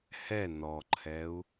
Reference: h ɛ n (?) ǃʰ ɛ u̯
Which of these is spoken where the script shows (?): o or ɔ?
ɔ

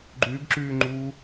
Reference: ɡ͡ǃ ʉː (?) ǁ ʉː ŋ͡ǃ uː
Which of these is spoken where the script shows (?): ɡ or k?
ɡ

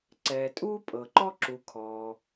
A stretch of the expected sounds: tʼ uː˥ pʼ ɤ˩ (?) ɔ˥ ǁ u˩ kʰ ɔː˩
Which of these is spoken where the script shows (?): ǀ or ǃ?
ǃ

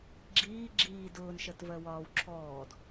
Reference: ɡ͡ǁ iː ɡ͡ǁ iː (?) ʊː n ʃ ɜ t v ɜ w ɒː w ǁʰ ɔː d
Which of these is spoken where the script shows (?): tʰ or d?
d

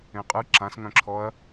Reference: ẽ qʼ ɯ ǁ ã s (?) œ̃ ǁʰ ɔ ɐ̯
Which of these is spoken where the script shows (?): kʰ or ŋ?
ŋ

